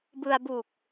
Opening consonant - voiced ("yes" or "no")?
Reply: yes